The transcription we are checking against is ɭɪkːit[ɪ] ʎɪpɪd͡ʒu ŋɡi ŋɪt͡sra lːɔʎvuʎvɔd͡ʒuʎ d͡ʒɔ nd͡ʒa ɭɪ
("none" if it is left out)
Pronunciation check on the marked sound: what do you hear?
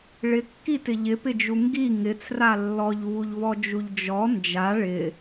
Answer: ɪ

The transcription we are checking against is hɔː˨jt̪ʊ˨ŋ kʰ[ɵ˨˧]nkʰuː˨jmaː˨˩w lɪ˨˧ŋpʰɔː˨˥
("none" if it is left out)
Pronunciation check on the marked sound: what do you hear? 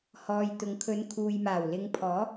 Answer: ɵ˨˧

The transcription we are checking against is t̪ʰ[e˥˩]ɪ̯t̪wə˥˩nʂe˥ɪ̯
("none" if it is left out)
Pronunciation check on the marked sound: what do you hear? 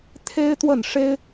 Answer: e˥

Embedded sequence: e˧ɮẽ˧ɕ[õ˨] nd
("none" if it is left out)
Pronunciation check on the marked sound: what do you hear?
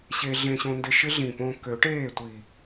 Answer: õ˧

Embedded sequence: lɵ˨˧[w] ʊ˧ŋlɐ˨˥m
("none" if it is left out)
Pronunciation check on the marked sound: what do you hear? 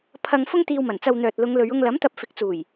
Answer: ɥ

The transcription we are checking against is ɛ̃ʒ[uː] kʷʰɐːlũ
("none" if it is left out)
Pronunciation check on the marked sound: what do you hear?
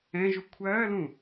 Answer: u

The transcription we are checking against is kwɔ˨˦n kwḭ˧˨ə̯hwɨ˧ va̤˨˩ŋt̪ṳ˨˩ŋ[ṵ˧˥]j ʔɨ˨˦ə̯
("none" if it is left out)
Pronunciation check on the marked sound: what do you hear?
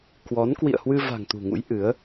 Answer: ṵ˧˥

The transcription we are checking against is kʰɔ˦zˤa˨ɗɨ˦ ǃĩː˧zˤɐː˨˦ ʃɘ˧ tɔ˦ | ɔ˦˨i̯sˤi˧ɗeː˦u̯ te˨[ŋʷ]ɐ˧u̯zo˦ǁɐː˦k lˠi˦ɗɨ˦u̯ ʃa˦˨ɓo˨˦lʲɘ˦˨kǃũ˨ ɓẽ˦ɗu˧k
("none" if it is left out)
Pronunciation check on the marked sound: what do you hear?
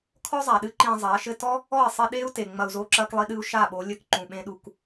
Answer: ŋ͡m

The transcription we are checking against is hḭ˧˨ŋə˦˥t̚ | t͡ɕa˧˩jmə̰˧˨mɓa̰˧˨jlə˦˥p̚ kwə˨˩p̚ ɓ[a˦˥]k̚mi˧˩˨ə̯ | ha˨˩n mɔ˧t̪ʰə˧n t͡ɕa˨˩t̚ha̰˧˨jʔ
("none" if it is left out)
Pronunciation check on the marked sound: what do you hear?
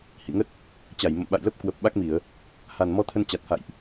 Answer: a˦˥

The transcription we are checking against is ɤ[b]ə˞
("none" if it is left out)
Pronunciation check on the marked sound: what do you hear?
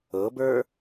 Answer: b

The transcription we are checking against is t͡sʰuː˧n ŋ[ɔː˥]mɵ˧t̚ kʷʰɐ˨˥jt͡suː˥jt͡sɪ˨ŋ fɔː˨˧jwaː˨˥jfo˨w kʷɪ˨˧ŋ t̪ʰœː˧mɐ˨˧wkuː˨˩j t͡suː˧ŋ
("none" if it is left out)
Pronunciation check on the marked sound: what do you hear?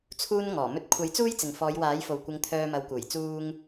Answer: ɔː˨˩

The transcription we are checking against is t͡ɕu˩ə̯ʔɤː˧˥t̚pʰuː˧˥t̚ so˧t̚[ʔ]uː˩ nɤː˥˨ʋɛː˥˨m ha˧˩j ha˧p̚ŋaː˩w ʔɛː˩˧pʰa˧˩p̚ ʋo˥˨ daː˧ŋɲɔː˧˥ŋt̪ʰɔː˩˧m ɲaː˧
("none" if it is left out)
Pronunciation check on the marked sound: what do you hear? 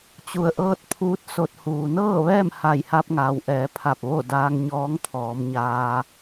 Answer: h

